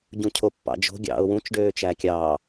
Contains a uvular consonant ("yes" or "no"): no